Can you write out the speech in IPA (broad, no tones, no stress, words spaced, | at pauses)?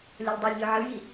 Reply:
lʲɤlʲdˤɤlʲʎʏ ʕɨji